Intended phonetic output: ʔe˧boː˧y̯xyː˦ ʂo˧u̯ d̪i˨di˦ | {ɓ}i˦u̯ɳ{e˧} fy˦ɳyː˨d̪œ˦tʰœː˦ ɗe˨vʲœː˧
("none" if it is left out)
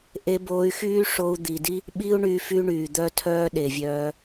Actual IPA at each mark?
ɓ, y˧

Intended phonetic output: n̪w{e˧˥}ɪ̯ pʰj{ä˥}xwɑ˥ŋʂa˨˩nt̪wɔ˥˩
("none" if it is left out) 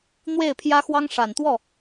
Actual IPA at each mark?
e˥˩, ä˥

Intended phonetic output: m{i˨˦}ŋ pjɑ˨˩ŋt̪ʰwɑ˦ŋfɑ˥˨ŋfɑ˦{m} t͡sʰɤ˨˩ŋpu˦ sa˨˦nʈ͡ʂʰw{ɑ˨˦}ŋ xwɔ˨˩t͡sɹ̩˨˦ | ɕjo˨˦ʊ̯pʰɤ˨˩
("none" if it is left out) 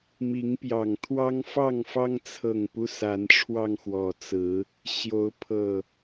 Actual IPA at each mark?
i˨˦, ŋ, ɑ˧

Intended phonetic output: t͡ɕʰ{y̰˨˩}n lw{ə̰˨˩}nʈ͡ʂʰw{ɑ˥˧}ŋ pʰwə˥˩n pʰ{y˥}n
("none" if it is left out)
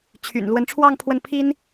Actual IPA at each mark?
y̰˨˩, ə˧˥, ɑ˥˧, i˥

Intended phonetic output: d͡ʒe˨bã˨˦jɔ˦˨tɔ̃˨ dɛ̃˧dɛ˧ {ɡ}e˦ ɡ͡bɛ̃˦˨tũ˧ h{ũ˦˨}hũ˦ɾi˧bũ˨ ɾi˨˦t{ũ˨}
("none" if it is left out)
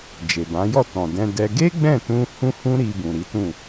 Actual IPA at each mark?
ɡ, ũ˦, ũ˦˨

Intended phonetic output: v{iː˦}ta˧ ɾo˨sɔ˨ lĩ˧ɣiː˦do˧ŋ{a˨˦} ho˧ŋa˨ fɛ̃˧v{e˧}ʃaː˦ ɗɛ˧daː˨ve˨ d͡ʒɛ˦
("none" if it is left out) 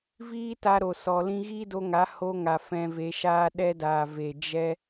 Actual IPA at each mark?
iː˦, a˨˦, e˧

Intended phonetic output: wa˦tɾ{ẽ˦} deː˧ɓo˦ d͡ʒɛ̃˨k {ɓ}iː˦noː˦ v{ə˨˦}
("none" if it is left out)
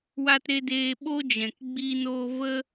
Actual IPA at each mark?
e˦, ɡ͡b, ə˦

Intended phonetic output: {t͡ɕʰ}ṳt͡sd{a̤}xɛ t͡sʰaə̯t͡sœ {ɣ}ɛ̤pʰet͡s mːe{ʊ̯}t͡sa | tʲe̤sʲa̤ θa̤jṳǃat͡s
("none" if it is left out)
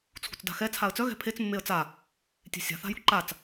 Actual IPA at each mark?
t͡sʰ, a̤, ɣ, ə̯

